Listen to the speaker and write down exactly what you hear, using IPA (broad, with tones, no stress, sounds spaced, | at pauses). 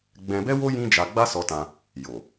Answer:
ɡ͡b ɛ̃˧ b ɛ˦ w o˦ j ĩ˦ d͡ʒ a˧ ɡ͡b a˦ s ɔ˧ t ã˧ | j o˨